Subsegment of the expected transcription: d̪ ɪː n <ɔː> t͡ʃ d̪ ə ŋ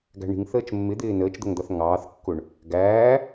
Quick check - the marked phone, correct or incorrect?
incorrect